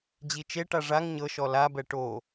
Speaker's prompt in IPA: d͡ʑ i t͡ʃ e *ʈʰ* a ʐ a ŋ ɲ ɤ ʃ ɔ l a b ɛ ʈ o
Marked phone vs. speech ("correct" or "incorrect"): incorrect